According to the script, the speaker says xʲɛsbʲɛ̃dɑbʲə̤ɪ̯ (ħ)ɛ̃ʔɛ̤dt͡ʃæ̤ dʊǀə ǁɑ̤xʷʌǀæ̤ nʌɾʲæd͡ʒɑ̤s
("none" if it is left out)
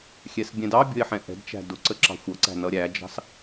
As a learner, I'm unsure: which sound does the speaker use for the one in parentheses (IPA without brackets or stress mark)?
ħ